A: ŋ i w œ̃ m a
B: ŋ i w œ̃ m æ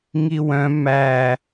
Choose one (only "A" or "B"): B